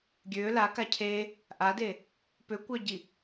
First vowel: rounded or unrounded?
rounded